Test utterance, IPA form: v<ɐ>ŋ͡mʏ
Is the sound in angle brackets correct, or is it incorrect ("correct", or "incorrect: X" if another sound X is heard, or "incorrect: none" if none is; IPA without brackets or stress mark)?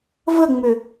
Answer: incorrect: ə